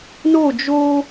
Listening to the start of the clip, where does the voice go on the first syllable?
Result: falling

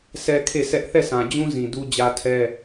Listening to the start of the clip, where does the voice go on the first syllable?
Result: high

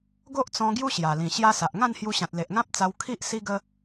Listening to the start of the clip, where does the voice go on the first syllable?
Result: high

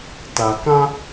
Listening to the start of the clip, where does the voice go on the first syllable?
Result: low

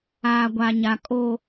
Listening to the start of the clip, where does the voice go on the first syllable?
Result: low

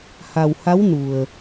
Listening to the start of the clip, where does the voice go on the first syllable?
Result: low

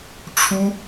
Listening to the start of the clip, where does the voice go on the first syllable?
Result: high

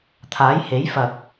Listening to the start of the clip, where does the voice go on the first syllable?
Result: rising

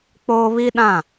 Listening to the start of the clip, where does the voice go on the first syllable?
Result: high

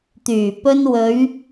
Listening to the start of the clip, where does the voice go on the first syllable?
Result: low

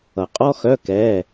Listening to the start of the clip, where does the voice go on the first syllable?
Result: low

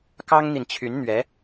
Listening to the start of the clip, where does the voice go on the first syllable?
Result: high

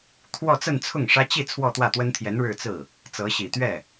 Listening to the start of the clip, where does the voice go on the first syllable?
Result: falling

